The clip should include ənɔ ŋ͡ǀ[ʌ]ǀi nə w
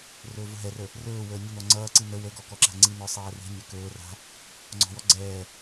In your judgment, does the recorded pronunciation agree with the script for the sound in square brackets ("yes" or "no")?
no